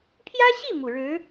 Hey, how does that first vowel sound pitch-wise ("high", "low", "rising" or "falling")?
high